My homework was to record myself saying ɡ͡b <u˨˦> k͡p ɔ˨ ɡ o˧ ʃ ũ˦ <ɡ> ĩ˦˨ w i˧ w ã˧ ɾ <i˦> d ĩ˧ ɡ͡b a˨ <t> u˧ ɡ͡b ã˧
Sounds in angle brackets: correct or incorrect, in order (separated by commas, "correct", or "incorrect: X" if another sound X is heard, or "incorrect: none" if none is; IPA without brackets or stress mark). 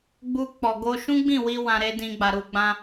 incorrect: u˧, incorrect: ɡ͡b, incorrect: e˦, incorrect: ɾ